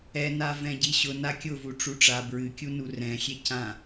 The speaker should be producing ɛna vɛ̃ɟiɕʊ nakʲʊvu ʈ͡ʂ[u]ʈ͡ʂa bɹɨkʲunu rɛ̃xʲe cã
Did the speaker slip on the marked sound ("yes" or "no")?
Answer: no